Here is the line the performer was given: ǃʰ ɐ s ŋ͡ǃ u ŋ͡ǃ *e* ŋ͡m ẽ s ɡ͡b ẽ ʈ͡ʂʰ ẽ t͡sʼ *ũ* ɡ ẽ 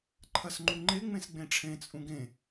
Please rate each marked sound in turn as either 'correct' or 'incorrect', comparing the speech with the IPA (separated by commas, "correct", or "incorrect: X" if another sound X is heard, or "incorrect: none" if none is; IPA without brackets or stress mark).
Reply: correct, correct